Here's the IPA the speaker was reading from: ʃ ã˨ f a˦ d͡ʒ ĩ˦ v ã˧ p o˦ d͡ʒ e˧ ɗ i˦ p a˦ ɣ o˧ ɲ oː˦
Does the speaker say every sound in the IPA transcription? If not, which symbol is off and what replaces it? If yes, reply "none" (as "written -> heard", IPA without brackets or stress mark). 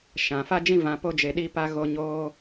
none